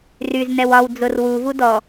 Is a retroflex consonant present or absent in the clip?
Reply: absent